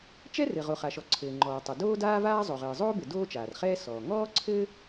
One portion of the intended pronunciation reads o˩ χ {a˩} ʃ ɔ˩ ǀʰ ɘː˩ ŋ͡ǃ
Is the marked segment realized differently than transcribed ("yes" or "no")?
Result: no